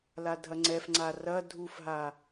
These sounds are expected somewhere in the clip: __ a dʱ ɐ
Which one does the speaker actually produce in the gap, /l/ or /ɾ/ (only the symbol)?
l